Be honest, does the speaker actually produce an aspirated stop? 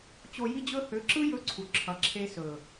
yes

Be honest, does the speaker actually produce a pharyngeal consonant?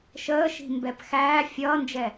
no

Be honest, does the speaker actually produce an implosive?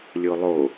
no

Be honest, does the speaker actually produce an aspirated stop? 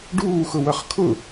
yes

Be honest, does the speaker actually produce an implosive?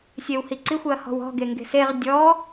no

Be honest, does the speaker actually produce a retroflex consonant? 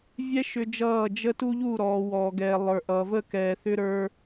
no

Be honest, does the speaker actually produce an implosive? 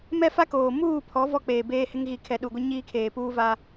yes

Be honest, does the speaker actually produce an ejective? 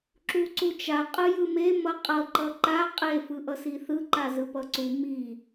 yes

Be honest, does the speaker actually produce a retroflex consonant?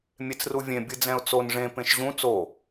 yes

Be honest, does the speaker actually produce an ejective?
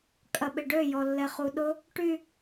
yes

